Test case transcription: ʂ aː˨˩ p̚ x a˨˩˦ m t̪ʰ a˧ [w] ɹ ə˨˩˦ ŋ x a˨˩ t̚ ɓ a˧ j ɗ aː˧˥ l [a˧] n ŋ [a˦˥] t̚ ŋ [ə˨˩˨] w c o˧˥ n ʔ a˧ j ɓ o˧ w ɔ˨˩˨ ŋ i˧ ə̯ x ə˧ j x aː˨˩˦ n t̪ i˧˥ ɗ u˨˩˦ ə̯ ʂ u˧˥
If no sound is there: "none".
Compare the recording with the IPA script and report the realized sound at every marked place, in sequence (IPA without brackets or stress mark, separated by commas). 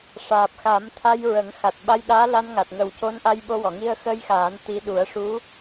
j, a˧, a˨˩, ə˨˩